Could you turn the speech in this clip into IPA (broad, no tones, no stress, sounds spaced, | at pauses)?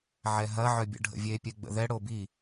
ʕ ɛ ɦ ɐ ʕ œ bʲ ə̰ ɖʱ ə̰ vʲ e pʲ ɛ ɡ͡b ə̰ ð ɛ ɽ o b i